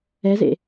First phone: ɛ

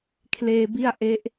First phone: kʰ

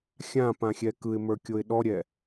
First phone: xʲ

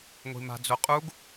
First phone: ŋʷ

